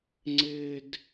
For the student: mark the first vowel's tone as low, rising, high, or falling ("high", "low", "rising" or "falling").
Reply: high